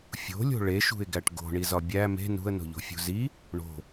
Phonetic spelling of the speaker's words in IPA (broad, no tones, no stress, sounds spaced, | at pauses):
fʲ o̤ lʲ o̤ ɭ e ʃ ṳ ɪ̯ ɡ æ ʈ ɡ o̤ ɳ i z ɒ bʲ æ m e̤ n ṳ ə̯ n o̤ ʎ o̤ fʲ ṳ z i | ɳ o̤